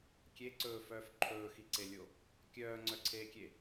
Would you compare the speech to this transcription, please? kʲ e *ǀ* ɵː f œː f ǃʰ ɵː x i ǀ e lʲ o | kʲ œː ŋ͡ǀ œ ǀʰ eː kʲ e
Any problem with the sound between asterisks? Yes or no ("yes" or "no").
no